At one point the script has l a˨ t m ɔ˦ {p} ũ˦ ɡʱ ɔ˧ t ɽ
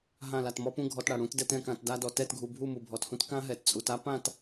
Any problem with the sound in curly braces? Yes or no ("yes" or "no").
no